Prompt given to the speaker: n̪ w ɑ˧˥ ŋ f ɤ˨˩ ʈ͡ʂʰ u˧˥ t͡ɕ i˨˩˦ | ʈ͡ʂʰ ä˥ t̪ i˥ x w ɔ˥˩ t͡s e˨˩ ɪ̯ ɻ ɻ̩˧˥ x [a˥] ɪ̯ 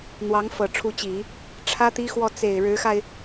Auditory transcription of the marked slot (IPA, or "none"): a˧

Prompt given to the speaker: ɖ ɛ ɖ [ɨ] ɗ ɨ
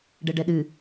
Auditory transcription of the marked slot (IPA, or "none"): ɛ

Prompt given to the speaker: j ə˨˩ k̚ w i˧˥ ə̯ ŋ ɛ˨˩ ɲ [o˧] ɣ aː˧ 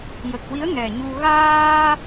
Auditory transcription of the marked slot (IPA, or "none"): u˧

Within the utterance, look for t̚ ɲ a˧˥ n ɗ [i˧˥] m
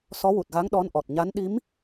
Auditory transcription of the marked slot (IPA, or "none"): i˧˥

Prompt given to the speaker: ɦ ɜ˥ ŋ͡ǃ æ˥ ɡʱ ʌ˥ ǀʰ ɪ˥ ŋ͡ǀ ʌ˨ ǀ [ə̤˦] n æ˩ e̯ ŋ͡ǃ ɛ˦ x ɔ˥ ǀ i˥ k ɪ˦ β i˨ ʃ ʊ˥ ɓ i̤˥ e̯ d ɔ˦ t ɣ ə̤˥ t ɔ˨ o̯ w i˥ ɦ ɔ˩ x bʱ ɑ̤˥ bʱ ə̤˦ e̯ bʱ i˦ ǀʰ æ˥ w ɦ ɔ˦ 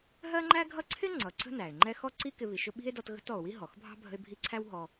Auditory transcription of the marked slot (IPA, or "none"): ə̤˥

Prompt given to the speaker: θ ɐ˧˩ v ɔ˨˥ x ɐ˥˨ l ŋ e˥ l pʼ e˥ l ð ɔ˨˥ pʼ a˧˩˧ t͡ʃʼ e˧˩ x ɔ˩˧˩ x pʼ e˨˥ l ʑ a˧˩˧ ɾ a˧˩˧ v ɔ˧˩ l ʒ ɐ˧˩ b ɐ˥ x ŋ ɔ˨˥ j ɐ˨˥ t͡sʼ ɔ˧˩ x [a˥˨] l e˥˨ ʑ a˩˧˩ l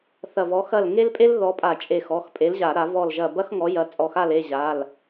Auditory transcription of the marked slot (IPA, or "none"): a˥˨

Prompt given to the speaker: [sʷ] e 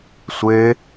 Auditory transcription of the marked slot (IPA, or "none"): sʷ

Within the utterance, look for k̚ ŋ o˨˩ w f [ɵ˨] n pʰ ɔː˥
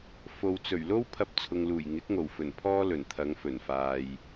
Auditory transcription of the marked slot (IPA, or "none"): ɵ˨˩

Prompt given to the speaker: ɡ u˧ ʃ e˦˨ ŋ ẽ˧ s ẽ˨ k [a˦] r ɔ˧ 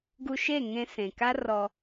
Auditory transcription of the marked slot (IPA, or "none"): a˦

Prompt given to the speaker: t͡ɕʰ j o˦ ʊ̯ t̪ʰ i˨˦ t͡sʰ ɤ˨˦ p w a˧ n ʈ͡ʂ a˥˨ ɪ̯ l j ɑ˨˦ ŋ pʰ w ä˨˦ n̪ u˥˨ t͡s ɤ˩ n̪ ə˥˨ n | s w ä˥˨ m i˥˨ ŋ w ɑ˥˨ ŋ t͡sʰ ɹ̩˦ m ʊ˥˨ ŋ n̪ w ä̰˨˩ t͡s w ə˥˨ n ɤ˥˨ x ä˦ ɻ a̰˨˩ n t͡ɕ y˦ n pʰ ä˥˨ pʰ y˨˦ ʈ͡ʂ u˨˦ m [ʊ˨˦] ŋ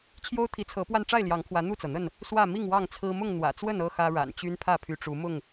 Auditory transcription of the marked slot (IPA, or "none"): ʊ˥˨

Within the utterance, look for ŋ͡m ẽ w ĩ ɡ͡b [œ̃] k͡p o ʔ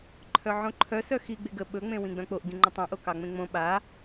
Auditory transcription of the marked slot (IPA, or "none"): œ̃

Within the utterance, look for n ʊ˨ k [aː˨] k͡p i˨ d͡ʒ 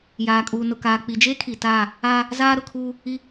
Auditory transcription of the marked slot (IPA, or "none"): aː˨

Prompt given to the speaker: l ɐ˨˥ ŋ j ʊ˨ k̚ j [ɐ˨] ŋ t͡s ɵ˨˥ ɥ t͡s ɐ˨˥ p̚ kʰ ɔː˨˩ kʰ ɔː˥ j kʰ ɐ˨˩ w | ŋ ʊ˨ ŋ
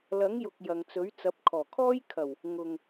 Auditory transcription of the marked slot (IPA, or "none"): ɐ˨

